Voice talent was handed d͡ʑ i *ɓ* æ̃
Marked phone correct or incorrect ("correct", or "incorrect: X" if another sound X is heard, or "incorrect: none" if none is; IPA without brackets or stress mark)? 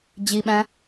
correct